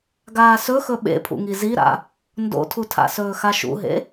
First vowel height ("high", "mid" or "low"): low